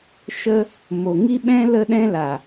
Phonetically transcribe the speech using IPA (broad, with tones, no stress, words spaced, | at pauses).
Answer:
ʃə˦ | mo˨ŋi˦ɓɛ̃˦ lə˦ɗɛ̃˦la˨